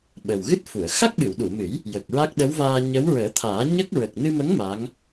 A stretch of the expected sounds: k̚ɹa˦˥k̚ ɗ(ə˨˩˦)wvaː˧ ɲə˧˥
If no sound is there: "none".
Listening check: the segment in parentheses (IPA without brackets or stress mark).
ə˧˥